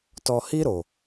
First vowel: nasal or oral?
oral